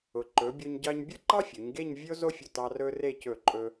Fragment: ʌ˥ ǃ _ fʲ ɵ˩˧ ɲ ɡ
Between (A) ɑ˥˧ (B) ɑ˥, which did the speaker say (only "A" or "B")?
B